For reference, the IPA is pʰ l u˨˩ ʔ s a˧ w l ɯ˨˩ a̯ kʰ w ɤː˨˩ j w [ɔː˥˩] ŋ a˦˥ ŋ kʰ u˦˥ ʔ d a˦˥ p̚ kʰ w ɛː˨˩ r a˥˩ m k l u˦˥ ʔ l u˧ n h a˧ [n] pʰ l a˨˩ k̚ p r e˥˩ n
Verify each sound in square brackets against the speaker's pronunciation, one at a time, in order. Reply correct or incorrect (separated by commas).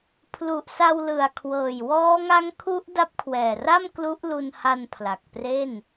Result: incorrect, correct